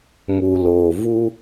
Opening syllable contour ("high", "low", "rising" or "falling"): low